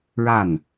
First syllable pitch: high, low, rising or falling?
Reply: falling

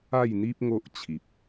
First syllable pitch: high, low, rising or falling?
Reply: falling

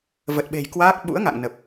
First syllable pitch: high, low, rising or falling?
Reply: low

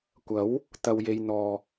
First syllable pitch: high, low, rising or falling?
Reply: rising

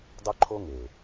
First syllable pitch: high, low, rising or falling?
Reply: high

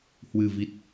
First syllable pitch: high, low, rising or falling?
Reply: low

